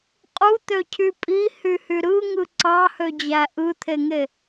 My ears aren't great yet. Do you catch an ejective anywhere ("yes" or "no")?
yes